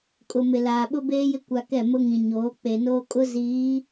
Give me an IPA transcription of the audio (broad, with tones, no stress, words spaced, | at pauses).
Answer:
kʼʊ˨ mɪ˨laː˨ ɓʊ˦beː˦jɪ˦ kʷa˨ kɛ˦˨mʊ˦ŋĩ˨ ɲoː˨˦ k͡pe˨noː˦kʼʊ˦ ziː˨˦